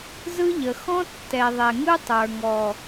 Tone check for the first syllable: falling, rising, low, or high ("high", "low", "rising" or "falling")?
high